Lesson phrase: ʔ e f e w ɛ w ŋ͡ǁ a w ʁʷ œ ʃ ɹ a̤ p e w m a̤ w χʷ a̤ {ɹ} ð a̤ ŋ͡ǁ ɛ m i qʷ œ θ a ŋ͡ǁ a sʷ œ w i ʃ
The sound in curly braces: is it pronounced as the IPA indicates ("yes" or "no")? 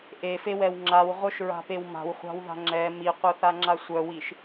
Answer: no